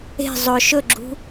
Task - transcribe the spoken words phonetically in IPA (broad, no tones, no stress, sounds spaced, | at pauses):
e̤ zˤ ɵ ʃ ɵ ɡ͡ǁ ṳ